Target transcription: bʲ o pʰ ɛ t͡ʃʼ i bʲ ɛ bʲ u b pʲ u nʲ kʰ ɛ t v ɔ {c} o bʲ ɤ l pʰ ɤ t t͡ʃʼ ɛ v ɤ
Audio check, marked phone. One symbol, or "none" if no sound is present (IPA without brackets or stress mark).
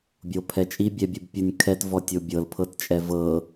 tʲ